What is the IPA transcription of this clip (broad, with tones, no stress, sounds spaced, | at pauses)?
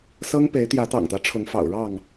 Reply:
s ɤ˦ ŋ p e˨˦ ɪ̯ t̪ j ä˨˦ t̪ ɑ̰˨˩ ŋ t̪ ä˦ ʈ͡ʂʰ ʊ˨˦ ŋ f ɑ̰˨˩ ʊ̯ ɻ ɑ˥˨ ŋ